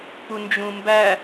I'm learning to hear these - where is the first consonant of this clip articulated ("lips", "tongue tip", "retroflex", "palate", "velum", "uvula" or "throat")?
lips